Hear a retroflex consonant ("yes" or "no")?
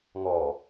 no